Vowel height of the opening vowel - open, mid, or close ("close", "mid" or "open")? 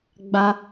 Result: open